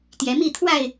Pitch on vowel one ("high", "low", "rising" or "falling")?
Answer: rising